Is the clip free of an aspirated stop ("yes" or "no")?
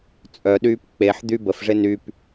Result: yes